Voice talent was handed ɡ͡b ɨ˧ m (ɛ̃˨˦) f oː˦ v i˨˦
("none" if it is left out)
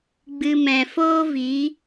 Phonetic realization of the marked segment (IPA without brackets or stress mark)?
ɛ̃˨